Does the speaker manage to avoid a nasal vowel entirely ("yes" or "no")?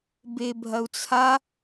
yes